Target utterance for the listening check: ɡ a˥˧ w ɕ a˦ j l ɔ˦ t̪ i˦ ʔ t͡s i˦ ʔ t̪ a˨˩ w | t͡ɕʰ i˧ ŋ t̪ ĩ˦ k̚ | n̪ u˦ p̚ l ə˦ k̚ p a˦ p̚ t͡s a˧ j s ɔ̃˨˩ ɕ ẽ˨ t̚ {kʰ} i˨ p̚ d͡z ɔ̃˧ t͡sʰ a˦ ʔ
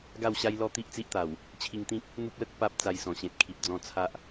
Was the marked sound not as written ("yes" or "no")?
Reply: no